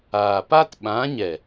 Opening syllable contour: low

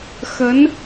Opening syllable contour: rising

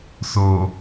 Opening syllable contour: low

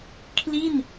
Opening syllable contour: falling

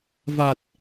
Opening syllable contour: low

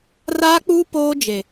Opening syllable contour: high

